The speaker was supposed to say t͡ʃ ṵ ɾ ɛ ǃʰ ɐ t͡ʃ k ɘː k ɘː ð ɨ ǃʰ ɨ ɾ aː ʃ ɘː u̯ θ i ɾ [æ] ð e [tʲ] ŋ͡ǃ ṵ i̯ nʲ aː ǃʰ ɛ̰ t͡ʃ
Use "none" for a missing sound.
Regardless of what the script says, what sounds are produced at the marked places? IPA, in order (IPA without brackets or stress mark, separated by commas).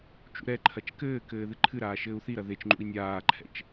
ɐ, t͡ʃ